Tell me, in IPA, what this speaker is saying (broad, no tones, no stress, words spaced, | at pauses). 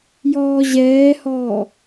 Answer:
jɔːʑɛːhɔː